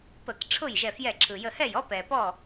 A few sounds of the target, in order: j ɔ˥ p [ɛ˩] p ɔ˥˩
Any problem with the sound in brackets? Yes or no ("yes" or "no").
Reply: no